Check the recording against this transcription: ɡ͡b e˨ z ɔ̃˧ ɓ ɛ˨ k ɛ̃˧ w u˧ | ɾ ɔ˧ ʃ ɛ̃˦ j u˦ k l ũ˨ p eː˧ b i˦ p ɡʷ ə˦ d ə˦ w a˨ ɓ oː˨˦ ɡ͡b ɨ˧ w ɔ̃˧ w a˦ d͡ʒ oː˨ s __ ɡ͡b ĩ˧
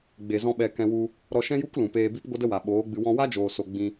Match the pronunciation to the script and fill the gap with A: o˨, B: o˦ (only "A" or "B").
A